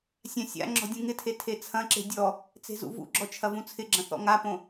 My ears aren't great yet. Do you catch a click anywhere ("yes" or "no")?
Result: yes